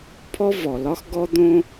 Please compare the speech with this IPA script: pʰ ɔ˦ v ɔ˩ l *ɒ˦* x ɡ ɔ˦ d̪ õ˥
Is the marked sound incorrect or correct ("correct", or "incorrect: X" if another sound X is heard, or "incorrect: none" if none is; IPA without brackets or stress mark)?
correct